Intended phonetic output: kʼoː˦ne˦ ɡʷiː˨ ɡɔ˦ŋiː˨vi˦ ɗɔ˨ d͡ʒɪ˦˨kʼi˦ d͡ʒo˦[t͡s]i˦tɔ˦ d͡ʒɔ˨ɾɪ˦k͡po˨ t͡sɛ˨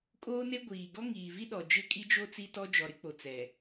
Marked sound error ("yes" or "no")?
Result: no